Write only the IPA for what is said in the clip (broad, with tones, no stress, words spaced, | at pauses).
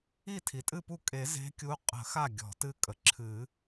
i˥˩tʰi˩tʼɨ˥˩pu˥˩ kʼe˨˩˦ze̤˧˥ kʲu˧˥qʼə̤˨˩˦xa˥˩ ɡʲɔ̤˨˩˦tɨ˥˩kʼə˩ ǁʰɨ˨˩˦